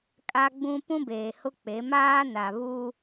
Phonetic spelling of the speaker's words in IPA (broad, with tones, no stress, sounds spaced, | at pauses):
kʼ a˦ ɡ͡b ũ˦ p ũ˦ b eː˨ h ʊ˦ k͡p e˨˦ m aː˦ n a˨ β u˦